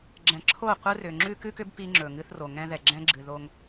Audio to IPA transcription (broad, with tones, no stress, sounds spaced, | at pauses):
ɡ͡ǁ ɛ̃˨ ǁʰ o˦˨ qʷ ɨ˦ r ʏ˨ ŋ͡ǁ ʉ˦ k ʉ˦ k ʏ˦ b p i˦ ŋ͡ǁ ɵ˨ ŋ ɨ˦ θ r o˨ ŋ ɛ̃˦ ð ɛ˨ ɡ͡ǁ ɛ̃˦ ɡ͡ǁ ɨ˨ ð o˦ ŋ